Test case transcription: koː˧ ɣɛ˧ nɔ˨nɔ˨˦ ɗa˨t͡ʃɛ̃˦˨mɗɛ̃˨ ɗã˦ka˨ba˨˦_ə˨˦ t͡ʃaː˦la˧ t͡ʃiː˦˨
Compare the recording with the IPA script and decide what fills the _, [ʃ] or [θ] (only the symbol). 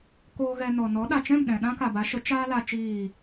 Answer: ʃ